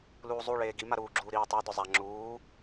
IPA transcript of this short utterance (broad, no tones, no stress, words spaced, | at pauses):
luːzˤu ɭeːɡima ɾuːɡ͡ǁuːɾiː tˤadʊ zˤa ŋ͡ǁuː